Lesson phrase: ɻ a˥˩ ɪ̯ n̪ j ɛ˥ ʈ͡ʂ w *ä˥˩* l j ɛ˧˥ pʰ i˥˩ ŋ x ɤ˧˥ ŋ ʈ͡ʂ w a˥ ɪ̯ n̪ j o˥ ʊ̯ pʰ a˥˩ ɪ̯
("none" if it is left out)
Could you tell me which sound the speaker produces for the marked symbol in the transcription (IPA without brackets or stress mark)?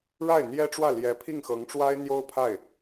ä˥˩